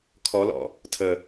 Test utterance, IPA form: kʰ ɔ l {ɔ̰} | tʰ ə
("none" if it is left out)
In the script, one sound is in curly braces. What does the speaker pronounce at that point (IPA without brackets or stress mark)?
ɔ̰